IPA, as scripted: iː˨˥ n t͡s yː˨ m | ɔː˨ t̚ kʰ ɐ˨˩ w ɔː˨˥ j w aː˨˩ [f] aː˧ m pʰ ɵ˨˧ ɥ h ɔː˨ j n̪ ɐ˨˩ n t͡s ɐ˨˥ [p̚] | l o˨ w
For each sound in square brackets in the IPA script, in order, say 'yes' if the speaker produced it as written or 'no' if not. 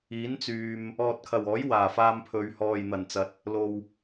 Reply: yes, no

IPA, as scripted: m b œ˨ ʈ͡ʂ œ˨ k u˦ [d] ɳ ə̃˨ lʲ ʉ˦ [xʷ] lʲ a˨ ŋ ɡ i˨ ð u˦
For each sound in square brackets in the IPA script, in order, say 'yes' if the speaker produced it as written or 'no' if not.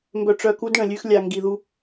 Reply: yes, no

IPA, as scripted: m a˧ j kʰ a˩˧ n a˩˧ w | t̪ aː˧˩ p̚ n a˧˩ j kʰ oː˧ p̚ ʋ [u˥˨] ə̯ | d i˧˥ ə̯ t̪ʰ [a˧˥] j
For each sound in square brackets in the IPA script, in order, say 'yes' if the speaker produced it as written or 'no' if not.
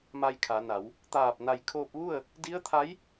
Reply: yes, yes

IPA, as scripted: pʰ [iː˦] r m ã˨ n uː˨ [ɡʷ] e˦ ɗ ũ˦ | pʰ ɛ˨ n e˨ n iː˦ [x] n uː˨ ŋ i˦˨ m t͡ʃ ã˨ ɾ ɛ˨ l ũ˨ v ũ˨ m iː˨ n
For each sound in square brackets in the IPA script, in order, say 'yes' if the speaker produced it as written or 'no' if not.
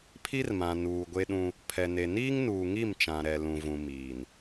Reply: no, yes, no

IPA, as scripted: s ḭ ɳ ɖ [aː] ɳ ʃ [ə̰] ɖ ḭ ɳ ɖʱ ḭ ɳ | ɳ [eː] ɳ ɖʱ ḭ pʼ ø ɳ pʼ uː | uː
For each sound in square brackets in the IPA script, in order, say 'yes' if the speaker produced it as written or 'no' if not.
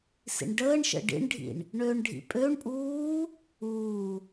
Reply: no, yes, no

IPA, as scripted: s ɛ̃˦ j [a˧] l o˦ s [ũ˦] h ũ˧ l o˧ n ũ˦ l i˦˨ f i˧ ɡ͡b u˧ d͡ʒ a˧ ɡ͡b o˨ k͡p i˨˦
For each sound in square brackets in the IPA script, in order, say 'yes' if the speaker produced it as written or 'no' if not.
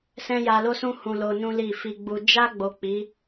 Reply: yes, yes

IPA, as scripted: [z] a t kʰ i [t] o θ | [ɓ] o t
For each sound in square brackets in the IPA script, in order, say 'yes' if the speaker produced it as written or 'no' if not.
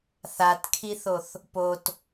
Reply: no, no, no

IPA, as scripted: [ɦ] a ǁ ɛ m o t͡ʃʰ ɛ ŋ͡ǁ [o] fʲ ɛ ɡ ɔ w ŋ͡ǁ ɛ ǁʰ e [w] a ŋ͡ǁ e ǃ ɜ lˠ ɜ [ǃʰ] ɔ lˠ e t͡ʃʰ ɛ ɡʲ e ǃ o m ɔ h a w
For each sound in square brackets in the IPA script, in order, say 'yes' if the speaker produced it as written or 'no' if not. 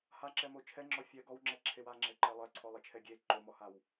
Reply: no, no, yes, no

